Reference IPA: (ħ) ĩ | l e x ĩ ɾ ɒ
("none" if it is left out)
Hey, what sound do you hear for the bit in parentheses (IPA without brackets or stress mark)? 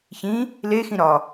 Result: ç